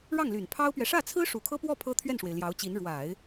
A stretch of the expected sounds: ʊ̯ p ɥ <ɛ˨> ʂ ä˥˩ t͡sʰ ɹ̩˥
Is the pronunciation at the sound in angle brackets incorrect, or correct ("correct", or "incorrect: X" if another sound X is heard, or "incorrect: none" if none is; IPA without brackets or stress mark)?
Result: correct